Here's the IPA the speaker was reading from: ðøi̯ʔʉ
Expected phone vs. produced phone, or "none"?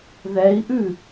ø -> ɛ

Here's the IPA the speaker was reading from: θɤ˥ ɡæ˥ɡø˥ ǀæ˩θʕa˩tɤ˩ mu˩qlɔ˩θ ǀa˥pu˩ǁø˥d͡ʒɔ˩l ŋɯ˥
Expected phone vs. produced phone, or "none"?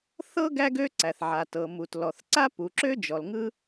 q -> t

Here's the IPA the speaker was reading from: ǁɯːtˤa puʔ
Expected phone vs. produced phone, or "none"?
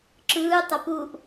none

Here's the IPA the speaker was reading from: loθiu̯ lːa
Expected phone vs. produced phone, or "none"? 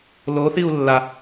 none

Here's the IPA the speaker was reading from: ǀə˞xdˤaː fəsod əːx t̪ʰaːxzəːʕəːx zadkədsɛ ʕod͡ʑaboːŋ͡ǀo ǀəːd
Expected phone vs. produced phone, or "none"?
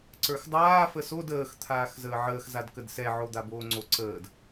d͡ʑ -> d̪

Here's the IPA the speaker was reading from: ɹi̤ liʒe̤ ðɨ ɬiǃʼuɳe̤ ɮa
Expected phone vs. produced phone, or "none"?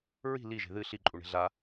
none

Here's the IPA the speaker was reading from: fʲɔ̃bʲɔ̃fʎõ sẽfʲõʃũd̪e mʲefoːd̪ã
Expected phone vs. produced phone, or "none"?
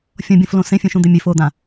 ʎ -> l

